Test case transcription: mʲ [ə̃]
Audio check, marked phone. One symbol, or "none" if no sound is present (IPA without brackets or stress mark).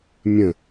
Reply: ə̃